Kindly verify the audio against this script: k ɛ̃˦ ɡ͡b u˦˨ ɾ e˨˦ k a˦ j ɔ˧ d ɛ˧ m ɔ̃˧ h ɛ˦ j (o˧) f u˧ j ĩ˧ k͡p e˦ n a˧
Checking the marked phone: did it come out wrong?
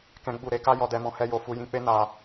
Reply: no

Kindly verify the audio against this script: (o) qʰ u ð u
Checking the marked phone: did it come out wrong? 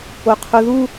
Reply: no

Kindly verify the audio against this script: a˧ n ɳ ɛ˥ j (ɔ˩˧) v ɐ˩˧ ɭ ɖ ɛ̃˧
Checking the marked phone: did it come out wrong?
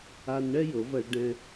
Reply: yes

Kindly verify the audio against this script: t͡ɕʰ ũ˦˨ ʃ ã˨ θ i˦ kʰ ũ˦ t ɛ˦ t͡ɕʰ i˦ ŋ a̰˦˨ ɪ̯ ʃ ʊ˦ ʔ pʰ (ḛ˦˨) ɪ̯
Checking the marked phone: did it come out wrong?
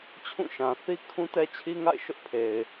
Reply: yes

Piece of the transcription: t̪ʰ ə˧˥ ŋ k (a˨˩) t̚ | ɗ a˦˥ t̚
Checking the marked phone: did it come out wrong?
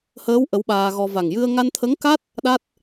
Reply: yes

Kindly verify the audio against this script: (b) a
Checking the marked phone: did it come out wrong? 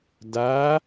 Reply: yes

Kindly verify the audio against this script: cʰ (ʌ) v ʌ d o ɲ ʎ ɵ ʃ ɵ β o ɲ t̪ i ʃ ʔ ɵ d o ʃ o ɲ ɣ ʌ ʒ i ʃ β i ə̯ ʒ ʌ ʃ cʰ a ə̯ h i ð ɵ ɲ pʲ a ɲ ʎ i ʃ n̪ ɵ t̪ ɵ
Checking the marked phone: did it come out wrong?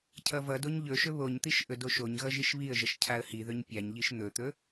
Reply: no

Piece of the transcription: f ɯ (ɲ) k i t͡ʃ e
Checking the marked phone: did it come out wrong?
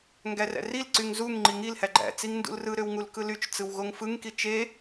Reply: yes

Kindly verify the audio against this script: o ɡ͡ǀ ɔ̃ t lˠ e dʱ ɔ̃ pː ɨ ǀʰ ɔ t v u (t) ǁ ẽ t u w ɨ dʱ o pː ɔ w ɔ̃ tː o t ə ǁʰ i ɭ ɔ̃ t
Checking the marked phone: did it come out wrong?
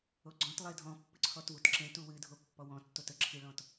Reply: no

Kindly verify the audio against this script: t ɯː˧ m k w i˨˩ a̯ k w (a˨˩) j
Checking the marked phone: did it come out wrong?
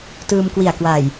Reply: no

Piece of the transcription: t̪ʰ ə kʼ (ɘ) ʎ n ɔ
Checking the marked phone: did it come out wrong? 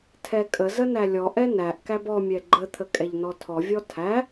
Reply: yes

